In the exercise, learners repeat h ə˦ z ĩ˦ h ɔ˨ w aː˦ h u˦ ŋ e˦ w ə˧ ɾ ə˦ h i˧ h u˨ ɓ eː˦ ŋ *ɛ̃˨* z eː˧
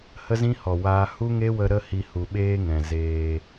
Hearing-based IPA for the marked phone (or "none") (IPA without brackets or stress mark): ɛ̃˨